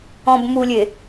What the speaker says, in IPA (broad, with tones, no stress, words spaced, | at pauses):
ɔ̃˨bmu˨lʲe˨